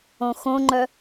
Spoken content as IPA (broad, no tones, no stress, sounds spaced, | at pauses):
õ x õ ŋ͡ǃ œ